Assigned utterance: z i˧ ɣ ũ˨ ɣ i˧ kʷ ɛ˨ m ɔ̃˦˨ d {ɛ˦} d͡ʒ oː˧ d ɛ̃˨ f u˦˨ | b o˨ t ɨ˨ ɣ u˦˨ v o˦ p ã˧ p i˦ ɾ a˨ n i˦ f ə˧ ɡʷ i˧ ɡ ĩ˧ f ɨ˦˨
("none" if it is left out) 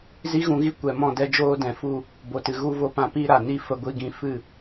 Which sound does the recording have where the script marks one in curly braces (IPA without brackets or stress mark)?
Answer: ɛ˧